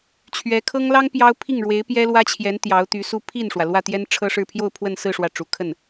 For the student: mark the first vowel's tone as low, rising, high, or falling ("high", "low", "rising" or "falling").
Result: rising